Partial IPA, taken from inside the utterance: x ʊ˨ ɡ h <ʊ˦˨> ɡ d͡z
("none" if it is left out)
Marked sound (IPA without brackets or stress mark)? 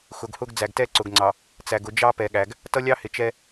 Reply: ʊ˦